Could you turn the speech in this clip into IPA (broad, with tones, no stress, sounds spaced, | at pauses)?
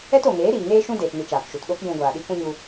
ɛ˦ t o˨ ŋ eː˨˦ ɾ iː˨ ŋ eː˦ ʃ ũ˦ d eː˧ t n i˧ t͡ʃ aː˨ k ʃ u˨ t ɗ o˦ k j ũ˧ ɡʷ aː˨ ɗ i˦ k ũ˦ ɲ u˧